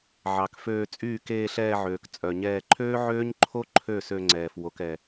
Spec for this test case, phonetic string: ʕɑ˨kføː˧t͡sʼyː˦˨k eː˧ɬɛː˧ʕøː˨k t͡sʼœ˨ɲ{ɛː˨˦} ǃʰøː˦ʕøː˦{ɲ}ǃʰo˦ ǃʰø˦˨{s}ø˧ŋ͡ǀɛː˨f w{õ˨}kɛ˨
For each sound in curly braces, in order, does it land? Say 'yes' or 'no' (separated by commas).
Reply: no, yes, yes, no